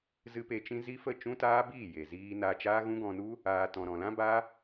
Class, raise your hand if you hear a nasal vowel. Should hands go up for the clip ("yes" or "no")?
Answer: yes